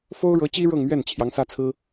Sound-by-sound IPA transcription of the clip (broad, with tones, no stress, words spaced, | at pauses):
fo˥ʊ̯ɻɤ˧˥t͡ɕi˥ ɻɤ˥˧ŋmɥɛ˥˩n t͡ɕʰjɑ˧˥ŋsä˥t͡sʰɹ̩˥